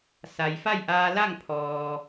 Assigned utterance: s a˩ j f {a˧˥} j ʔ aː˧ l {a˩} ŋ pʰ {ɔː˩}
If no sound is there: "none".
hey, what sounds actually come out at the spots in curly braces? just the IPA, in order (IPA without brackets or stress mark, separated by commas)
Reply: a˥˨, a˥˨, ɔː˩